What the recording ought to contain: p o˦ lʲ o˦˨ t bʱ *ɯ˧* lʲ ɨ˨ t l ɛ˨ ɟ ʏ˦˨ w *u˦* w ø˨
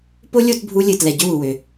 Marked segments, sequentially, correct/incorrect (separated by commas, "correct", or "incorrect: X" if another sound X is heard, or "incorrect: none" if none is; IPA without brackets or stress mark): incorrect: u˧, incorrect: u˨